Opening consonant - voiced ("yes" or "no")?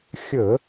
no